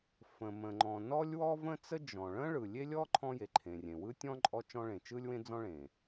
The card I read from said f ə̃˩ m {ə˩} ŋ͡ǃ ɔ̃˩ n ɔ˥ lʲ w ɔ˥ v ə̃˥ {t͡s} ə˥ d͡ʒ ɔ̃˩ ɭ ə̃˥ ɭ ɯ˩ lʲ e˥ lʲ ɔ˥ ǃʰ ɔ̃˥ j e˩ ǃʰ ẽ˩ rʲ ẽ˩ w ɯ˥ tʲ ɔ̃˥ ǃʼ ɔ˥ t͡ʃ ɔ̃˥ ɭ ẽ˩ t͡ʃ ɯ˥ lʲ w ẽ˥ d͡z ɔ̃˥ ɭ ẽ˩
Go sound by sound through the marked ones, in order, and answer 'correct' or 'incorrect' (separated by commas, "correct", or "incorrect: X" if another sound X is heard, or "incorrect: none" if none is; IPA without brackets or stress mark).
incorrect: ə̃˩, correct